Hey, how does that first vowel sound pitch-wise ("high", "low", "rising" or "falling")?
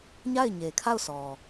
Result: falling